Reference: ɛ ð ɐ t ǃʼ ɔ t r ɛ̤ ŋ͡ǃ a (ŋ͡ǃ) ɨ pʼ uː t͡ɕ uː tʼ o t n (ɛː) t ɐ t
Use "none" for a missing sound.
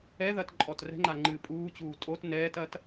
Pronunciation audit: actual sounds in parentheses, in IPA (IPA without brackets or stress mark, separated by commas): ŋ͡ǃ, ɛː